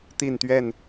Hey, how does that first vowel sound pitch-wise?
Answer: falling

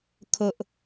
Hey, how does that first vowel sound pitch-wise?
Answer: low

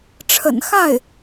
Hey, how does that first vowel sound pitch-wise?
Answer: low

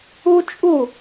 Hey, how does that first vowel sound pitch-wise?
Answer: high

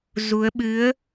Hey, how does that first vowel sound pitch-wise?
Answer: rising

